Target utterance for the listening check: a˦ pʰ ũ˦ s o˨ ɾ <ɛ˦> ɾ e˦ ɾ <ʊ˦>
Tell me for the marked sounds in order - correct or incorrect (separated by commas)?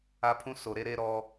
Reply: incorrect, incorrect